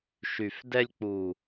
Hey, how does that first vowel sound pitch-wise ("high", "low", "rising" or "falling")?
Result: low